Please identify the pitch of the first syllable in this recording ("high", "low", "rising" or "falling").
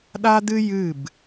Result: high